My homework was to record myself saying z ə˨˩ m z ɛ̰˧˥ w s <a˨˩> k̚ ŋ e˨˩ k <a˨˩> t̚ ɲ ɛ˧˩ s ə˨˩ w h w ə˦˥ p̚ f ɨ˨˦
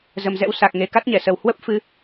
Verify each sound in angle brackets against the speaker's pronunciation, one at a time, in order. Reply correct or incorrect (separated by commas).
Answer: correct, incorrect